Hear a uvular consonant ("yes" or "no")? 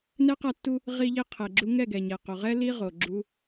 yes